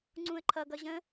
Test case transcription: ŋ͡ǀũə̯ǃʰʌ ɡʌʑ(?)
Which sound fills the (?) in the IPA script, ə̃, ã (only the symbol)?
ə̃